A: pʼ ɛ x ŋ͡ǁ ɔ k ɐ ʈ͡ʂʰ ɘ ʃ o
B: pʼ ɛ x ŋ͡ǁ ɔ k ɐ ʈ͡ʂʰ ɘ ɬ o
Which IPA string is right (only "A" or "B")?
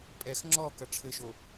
A